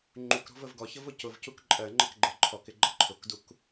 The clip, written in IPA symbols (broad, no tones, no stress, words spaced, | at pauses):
ŋ͡ǃukɾɔ̤v əvɡɔçəv ʊcʊvcuk ǃʼɜŋ͡ǃək ɡ͡ǃɜǃʰɔkɪ ɡ͡ǃʌǃʰʊkduk